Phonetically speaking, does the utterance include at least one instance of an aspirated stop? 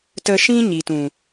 no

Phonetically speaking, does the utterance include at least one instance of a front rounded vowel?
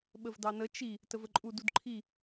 no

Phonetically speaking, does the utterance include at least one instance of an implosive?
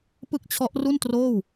no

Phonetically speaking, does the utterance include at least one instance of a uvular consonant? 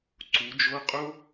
yes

